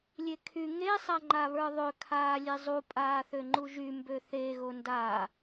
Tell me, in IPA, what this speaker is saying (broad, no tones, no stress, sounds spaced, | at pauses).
lʲ e kʰ y ŋ e sˤ a ŋ͡ǃ a β ə˞ ðˤ ø kʰ aː lʲ e zˤ u pʼ aː θ ø ŋ͡ǃ u ʒ y m b ø θ e ɣ o n d a